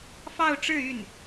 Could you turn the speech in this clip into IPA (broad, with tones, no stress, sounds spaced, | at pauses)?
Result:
f ɑ˥˧ ʊ̯ ʈ͡ʂ ɻ̩˥˧ y˥˩ n